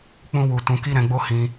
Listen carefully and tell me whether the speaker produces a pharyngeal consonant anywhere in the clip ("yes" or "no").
no